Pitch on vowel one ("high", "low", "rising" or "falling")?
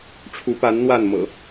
rising